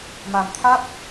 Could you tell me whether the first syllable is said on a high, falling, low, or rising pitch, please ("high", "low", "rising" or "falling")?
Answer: low